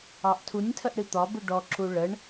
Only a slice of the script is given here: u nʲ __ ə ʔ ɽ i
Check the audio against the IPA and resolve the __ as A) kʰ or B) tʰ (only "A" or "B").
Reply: B